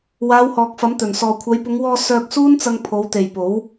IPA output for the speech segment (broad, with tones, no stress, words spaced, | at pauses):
waː˨˧whɔː˨k̚ fɐ˨˥mt̪ɵ˨˩n sɔː˨kʷʰɐ˨˧jpʊ˨˧ŋwɔː˧ sœː˧k̚ suː˥nt͡sɐ˧ŋ pʰo˨˧wt̪e˨jpo˨˥w